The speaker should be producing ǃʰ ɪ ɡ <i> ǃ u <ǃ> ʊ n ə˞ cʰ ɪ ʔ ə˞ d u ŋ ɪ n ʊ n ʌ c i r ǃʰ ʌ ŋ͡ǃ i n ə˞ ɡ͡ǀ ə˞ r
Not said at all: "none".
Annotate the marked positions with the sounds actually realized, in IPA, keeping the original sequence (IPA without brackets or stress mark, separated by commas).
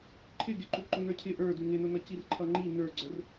ɪ, ǃ